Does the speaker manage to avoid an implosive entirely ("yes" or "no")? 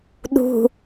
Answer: no